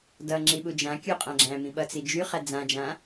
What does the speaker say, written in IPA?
d ʌ ŋ͡ǁ i ɓ u d͡ʒ ã kʲ u qʼ ã ɡ͡ǁ æ̃ m ĩ ɓ ʌ t͡s i d͡ʒ y χ æ d͡z ã d͡ʒ ã

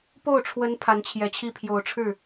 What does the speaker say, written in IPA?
p o˥˩ ʊ̯ ʈ͡ʂʰ w ə˧˥ n pʰ a˧˥ n t͡ɕʰ j ɛ˧˥ t͡ɕʰ i˥˩ pʰ j o˨˩ ʊ̯ ʈ͡ʂʰ ɻ̩˥˩

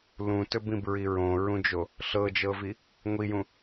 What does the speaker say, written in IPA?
l ũ t ɵ b ĩ b ɹ i ɹ õ ɹ ũ d͡ʒ o | ɬ ɤ d͡ʒ ɤ v i | ŋʷ i j ũ

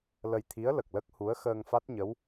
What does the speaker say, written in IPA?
l ə˧ j t̪ʰ i˧˥ ə̯ l ə˨˩ k̚ l ə˦˥ k̚ h u˧˥ ə̯ x əː˧ ŋ f a˦˥ t̚ ɲ ə˧˥ w

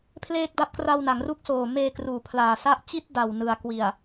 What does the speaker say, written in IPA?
pʰ l eː˥˩ k̚ d a˥˩ p̚ k r a˧ w n a˩˦ ŋ r u˦˥ k̚ s oː˨˩ m eː˧ k r uː˨˩ pʰ l aː˨˩ s a˦˥ ʔ t͡ɕ i˥˩ t̚ d a˨˩ w n ɯ˨˩ a̯ k w i˨˩ a̯

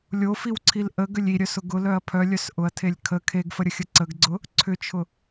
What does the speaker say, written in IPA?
lʲ o f i w ǀʰ i l ʔ ə ɡ ʏ lʲ i ɾʲ œ s ʊ ɡ ʊ l œ ɐ̯ pʰ œ lʲ œ s ʔ ʊ ɐ̯ tʰ e lʲ kʰ ə kʰ e ɡ f ə ɾʲ ə xʲ ə ǀ ə ɡ ɡ͡ǀ ʊ | ǀʰ ʏ t͡ʃʰ ʊ

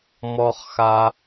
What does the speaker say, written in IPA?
m ɔ˦ χ x a˦

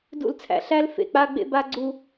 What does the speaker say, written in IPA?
d ṵ˦˨ l t͡sʰ æ̰˨ ɬ æ˦ l f ḛ˨ k͡p a˦ ɡ͡b ḛ˦ b a˦ ɡ͡ǀ u˦

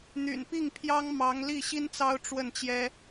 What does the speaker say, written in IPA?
n̪ y̰˨˩ n p i˥˩ ŋ pʰ j ɑ˥ ŋ m ɑ˧˥ ŋ l i˥˩ ɕ i˥ n t͡s ɑ˥ ʊ̯ ʈ͡ʂ w ə˥˩ n t͡ɕ j ɛ˥

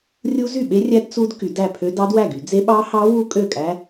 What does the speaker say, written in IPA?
rʲ u˦˥ z y˥˩ ɓ e˦˥ rʲ æ˦˥ d t͡s u˦˥ d k y˨˩˦ d æ˥˩ pʰ ø˦˥ d ɑ˦˥ d w æ˥˩ ɡ y˨˩˦ d͡z e˦˥ ɓ ɑ˦˥ h ɑ˦˥ w u˦˥ kʼ ø˥˩ kʼ æ˦˥

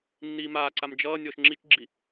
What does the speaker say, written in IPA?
nː iː m aː ǀ a m d͡ʒ ʌː nʲ ɔː ʃ ŋ͡ǁ i t͡ʃ ɡ͡ǁ i

